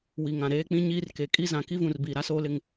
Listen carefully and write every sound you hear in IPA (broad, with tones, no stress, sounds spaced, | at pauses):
w i˨ ŋ ã˨ ɾ eː˦ k͡p ĩ˦ ɲ iː˦ r k e˨ kʼ i˦ z ã˨ k i˦ v ũ˨ r b iː˨ ɾ a˦ s oː˦ l ɪ˦ ŋ